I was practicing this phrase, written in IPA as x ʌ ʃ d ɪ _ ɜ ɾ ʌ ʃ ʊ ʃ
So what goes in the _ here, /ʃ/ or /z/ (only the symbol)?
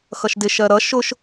ʃ